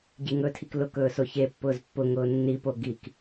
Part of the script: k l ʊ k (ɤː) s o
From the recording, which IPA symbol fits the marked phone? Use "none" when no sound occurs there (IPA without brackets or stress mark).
ɵː